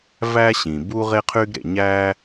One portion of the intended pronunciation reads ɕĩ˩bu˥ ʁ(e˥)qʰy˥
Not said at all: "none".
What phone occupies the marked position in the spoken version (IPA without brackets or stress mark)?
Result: e˥